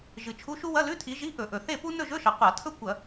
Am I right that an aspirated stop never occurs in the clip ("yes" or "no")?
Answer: no